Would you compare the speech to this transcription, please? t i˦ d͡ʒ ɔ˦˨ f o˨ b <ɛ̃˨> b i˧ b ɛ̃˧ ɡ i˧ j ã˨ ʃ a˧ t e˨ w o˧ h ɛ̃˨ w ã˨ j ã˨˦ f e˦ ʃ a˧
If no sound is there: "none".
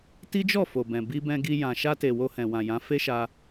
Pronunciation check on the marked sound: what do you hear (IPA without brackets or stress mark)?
ɛ̃˨